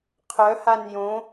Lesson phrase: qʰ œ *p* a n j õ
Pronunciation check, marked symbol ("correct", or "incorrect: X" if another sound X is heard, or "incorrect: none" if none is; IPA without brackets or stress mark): incorrect: h